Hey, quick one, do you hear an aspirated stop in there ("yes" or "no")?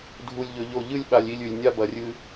no